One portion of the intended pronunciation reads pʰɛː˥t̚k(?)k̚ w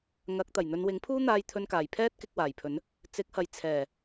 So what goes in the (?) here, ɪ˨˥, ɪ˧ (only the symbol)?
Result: ɪ˧